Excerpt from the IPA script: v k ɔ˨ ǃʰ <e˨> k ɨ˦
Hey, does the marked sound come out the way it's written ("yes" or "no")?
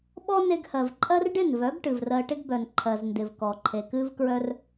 yes